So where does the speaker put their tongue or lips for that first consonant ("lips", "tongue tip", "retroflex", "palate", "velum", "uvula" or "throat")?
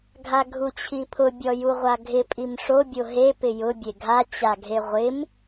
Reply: velum